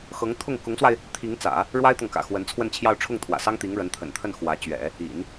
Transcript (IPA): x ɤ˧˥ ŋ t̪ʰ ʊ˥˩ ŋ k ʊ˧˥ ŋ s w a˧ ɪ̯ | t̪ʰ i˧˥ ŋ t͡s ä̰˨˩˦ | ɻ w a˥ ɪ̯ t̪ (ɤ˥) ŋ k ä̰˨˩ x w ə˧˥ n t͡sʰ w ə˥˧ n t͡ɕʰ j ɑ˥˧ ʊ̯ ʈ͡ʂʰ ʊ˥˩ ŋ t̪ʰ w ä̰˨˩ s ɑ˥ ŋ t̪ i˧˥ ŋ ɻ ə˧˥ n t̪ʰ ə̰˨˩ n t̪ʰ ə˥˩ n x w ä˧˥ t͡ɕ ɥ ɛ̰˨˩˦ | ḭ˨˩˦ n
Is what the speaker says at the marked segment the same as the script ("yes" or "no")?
no